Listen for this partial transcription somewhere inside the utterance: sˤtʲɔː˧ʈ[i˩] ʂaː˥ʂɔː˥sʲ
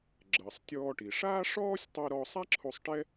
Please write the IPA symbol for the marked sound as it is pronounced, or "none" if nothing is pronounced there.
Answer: i˩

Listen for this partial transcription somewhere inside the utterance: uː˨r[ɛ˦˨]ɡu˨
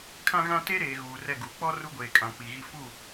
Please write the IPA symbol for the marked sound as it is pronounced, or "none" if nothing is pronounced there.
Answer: ɛ˦˨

